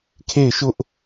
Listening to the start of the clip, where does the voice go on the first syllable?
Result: falling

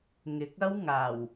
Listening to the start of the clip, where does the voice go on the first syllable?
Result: rising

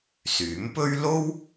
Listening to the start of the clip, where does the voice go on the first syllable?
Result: rising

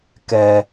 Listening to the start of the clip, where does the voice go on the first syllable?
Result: low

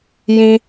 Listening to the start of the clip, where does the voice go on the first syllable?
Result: high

